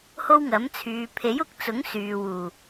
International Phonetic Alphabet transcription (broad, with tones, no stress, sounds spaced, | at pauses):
h o˥ w ŋ ɐ˨˥ m t͡sʰ yː˨˧ pʰ e˨˥ j ʊ˨ k̚ t͡s ʊ˨˥ ŋ s yː˨ w uː˨˩